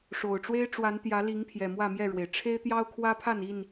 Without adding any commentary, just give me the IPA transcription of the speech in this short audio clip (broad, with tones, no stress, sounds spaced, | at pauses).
ʂ o˨˩ ʊ̯ ʈ͡ʂ w e˦ ɪ̯ ʈ͡ʂ w a˨˦ n t̪ j ä˨˦ l i˨˦ ŋ pʰ j ɛ˨˩ m w ä˥˨ m j ɛ˥˨ ɻ w e˩ ɪ̯ ʈ͡ʂʰ e˦ ɪ̯ t̪ j ɑ˦ ʊ̯ kʰ w ä˦ pʰ a˥˨ n i˥˨ n